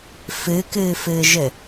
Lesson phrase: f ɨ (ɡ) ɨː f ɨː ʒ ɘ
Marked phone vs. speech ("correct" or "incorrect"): incorrect